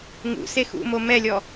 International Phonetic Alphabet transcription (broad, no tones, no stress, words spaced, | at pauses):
ŋṵse xṵmo mɛlʲɔ